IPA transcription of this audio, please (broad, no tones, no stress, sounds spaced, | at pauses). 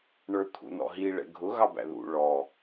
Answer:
ɳ ə˞ t̪ʰ ṵ n ɔ̰ ɦ i ɭ ɛ̰ ɡʱ ʊ ɣ ɑ b æ̰ ð ṵ ɭ ɔ